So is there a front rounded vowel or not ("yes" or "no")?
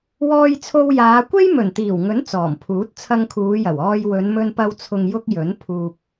no